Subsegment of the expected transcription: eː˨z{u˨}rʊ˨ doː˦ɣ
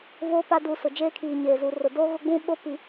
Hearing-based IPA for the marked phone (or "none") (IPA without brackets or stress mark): u˨